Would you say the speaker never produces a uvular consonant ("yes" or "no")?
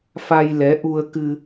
yes